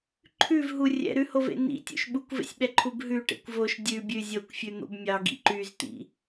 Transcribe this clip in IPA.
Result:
ǃʰ ʉ v ɦ u rʲ ɛ̰ ɾ ʉ h o v ḛ n ḭ tʲ ṵ ʃ ɓ u kʷ v ḛ sʲ ɓ ɛ ǃʰ u b ɦ ʉ ʈ ḛ kʷ v o ʃ dʲ ʉ bʲ ʉ zʲ o kʷ fʲ ʉ n̪ o̰ b mʲ ɑ ɡ ḭ ǃ y z t̪ ḭ

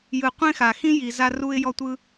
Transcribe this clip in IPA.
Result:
j ɯ˨ qʷ ẽ˥ x a˩ x ĩ˥ j i˨ z a˦ r u˦ ɪ̯ j ɔ˦ tʷ ɯ˦

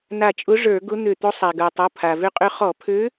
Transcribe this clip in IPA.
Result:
n a˧˩ t͡ʃʼ ʊ˧˥ ʐ ə˞˧˩˧ ɡ ʊ˧˥ n̪ ø˧˩ t̪ o˧˥ sˤ a˩ ɡ ə˞˩ tˤ o˩˧˩ pʰ a˩ v ø˥ qʼ ø˥ χ ɔ˧˩˧ pʰ ø˧˥

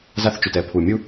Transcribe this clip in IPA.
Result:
z a˦ θ t͡ʃ y˨ t ɛ˨ pʰ u˨ mʲ u˦

